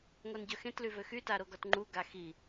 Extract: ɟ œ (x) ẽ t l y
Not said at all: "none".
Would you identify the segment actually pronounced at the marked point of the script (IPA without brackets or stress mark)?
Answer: x